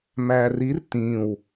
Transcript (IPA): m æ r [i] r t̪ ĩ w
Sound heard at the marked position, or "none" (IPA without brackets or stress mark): i